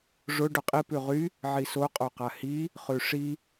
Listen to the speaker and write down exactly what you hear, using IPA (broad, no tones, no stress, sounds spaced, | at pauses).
ʐ ʊ ɖ ʊ qʼ i p ʉ ʁ y | ʕ i s o qʼ o q a h i | χ ʉ ʂ i